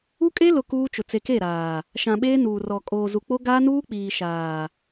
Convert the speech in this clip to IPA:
u˦ kʼ e˦ l ʊ˨ k uː˦ t͡ʃ ʊ˨ t͡s e˨ k e˦˨ ɾ aː˨ | ʃ ã˨ ɓ eː˦ n uː˨ r ɔ˨ kʼ oː˨ z u˨ k͡p o˦ ɡ aː˦ n uː˦ k͡p iː˨ ʃ aː˨

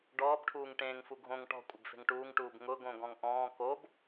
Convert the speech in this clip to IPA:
ɖ ɔː b ʈʰ uː ŋ ʈ ẽː ŋ f u ɡʱ õ ŋ ʈ ɔ̤ kʷʼ ɪ b f e̤ ŋ ʈ uː ŋ ʈ uː b ŋ ʊ ɡ õ ɡ ɔ̃ ŋ ʔ ɔ̃ː k o b

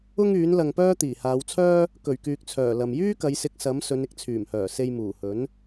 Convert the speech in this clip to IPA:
ʊ˥ ŋ yː˨˥ n l ɐ˨ ŋ p œː˥ t̪ iː˨˩ h aː˨˧ w t͡sʰ œː˥ | k ɵ˨˩ ɥ k yː˨ k̚ t͡sʰ œː˨˩ l ɐ˨ m j yː˥ k ɐ˨˧ j s ɪ˨˥ k̚ s ɐ˨˥ m s ɵ˨˧ n ɪ˥ k̚ t͡sʰ yː˨˩ m h œː˨˩ s e˧ j m uː˨˩ h ɵ˨˥ n

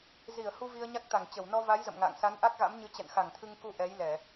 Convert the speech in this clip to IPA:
z i˧˩ ə̯ h u˧ v i˧ ə̯ ɲ a˦˥ k̚ t̪ a˧˩ ŋ t͡ɕ ə˧˩ w n ɔ˧ v a˨˦ j z ə̰˧˨ m ŋ a̰ː˧˨ ŋ s a˨˦ n ʔ a˦˥ k̚ ɣ a̰˧˥ m ɲ ɨ˨˦ t͡ɕ ɛ̰˧˨ n x a˧˩ ŋ t̪ʰ ɨ˧ ŋ k u˧ ʔ ɛ˨˦ j l ɛ˧˩˨

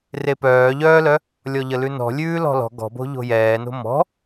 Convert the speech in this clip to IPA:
r e p œː ʎ œː l œ | lʲ ɔ ʎ ə l ʉ n ɔ̤ lʲ ʉː l ɔ̤ l ɔ̤ ɡ ɔ̤ b o̤ ʎ o̤ j ɛː n o̤ m ɔ̤

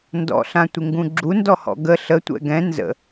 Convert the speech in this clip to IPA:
n d ɔ̰ ɬ ã tʷ ɪ ŋ ɡ ũ ɡ͡ǁ u n d ɔ h ɔ̰ ɡ ə ɬ ə tʷ ɛ̰ ɡ ɛ̃ n z ə̰

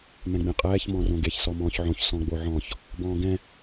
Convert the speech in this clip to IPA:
m ɛ̃ ɡ͡b ẽ qʼ ɛː ç m ɔ̃ r õ ɡ e ç s ɔ m ɔ̃ː ç ʕ õ ç s ɔ̃ ɡ͡b o ʕ ɔ̃ ç | b ɔ̃ː ɡ ɛ̃

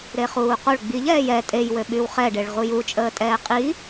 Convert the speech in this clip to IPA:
ɾ e χ uː q o ɭ ɡ͡b i ʎ ɛː j ɛ tʼ e j w ø ɓ y w χ ɛ ɖ e ɭ ʁ u j u t͡ʃʼ əː tʼ ɛː qʼ i

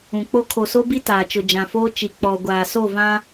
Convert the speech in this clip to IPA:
ũ˨ k͡p o˦ kʰ o˨ s o˦ b i˦ t aː˨ t͡ʃ ʊ˨ d͡ʒ ã˨ f oː˦ t͡ʃ i˨ k͡p ɔ˨ ɡʷ aː˨ s o˦˨ v ã˦

